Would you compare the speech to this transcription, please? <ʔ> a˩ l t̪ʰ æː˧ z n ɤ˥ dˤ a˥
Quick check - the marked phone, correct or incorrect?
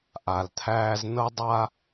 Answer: correct